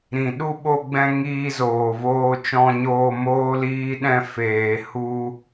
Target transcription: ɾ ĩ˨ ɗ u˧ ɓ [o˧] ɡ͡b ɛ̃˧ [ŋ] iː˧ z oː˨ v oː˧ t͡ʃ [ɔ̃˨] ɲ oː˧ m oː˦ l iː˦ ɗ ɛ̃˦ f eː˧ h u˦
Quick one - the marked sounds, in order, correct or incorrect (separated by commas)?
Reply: correct, correct, incorrect